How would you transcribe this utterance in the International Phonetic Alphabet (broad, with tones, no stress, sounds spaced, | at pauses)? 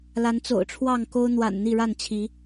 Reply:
l a˨˦ n t͡s o̰˨˩ ʊ̯ ʈ͡ʂʰ w ɑ˥˨ ŋ k o˦ ʊ̯ n̪ w a̰˨˩ n n̪ i˥˨ ɻ a˥˨ n t͡ɕʰ i˨˦